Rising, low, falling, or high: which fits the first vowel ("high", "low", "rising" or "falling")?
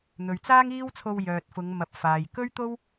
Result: low